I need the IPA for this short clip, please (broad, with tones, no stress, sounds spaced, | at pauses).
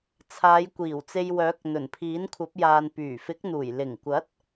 t͡sʰ aː˨˧ j kʷ iː˨˩ w t͡s e˧ j w œː˨˥ k̚ n̪ ɵ˨˩ n pʰ iː˨˥ n kʷʰ ɐ˨˥ p̚ j aː˨ n p yː˨˩ f ɪ˨˥ k̚ n̪ uː˨˩ j l ɪ˨˩ ŋ kʷ ɐ˨˥ t̚